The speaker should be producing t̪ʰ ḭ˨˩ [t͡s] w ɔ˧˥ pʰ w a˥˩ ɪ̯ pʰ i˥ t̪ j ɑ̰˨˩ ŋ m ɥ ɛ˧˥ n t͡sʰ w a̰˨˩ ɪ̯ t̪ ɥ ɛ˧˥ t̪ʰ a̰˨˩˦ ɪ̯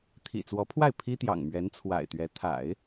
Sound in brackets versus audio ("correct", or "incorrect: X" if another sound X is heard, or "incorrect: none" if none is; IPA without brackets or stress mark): correct